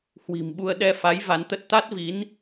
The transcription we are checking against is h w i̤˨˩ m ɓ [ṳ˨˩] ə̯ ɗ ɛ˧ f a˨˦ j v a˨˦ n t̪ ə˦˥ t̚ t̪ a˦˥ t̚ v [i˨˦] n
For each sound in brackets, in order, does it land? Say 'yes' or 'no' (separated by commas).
no, yes